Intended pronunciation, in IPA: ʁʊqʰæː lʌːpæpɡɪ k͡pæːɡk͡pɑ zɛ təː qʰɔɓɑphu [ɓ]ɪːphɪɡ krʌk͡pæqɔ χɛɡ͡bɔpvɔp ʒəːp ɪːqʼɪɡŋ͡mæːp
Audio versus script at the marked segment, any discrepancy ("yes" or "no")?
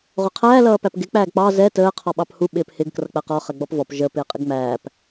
no